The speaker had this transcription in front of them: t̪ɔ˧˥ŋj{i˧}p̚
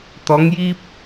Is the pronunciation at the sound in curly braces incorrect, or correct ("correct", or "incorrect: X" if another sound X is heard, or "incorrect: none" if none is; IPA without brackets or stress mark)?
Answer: incorrect: i˦˥